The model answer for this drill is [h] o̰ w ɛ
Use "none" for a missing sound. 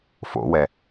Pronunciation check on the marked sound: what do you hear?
f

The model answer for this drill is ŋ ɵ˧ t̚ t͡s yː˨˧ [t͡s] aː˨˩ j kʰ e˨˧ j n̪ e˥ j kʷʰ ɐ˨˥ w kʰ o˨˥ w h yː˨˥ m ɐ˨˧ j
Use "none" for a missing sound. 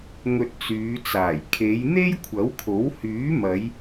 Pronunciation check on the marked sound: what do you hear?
t͡s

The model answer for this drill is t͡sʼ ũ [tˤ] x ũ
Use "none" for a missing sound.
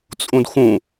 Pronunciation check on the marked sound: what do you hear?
d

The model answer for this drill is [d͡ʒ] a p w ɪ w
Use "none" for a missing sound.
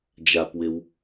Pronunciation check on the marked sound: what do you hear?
d͡ʒ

